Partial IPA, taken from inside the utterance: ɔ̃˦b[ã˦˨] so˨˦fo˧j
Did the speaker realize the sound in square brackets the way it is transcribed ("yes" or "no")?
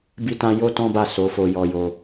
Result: no